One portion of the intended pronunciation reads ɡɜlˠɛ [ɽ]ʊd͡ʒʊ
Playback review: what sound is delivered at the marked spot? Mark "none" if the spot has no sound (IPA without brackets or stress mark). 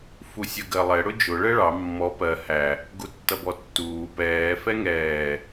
ɽ